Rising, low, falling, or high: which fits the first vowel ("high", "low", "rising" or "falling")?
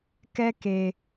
high